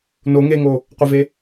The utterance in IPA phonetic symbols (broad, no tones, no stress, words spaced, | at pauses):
no ŋeŋo | qʷɪve